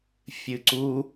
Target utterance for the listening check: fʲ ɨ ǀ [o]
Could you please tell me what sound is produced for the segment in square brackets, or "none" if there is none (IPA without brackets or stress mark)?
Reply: u